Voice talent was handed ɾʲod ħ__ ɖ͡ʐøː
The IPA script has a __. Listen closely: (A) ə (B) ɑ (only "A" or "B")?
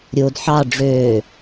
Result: B